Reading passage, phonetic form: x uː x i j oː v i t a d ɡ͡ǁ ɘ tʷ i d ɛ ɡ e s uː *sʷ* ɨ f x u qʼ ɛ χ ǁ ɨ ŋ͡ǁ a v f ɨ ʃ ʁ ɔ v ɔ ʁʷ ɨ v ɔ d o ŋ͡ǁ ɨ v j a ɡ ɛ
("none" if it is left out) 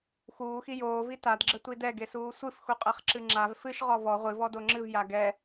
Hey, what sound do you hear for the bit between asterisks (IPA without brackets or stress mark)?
sʷ